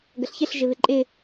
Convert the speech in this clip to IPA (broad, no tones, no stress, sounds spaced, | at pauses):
ɡ ə ɬ ç ɪ ɬ ʒ ɪ β ɪ ǃʼ ɪ